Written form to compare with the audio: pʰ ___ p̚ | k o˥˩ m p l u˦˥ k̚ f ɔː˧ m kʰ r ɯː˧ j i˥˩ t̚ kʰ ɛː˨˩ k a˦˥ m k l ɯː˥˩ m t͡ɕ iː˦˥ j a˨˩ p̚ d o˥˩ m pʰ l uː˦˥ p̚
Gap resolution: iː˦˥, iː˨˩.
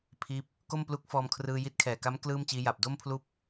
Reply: iː˦˥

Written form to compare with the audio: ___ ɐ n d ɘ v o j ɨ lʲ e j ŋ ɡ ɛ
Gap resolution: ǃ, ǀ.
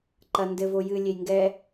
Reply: ǃ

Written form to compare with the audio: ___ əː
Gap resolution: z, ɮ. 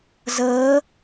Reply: z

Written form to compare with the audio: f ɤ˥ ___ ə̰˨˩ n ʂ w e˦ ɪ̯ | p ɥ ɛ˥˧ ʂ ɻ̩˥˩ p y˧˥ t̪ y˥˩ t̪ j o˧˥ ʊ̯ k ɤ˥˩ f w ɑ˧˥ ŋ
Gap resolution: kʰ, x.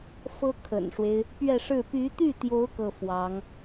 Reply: kʰ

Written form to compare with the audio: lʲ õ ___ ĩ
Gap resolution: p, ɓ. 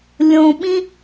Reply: ɓ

